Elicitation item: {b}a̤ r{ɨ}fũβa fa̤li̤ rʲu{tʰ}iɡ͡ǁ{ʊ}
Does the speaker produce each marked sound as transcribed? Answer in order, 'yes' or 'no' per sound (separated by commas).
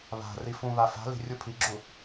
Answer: no, no, no, no